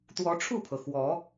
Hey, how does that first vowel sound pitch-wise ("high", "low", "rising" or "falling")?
rising